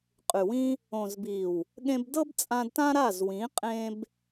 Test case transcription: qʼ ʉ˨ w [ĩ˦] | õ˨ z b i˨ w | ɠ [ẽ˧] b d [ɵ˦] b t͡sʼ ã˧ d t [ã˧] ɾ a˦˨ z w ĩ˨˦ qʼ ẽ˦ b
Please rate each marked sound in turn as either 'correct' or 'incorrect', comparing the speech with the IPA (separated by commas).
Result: correct, correct, incorrect, incorrect